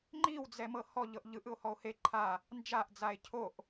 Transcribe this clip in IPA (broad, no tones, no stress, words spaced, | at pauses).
ŋ͡ǃiwd͡zɛ mɤhɔ ʎɤʔʎɯʔ ɯo̯hɔo̯he ǃʰa | nd͡ʒaʔd͡zae̯ cʰoʔ